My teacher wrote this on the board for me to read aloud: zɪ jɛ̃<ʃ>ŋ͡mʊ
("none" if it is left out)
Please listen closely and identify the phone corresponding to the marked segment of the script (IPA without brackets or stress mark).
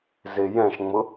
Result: ʃ